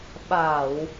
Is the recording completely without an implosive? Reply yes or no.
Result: no